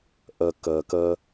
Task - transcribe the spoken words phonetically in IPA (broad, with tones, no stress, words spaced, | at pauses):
ʔɜ˨ kɜ˨kɜ˧